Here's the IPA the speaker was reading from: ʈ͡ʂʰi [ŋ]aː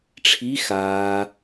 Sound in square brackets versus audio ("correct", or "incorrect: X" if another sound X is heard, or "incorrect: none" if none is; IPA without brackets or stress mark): incorrect: x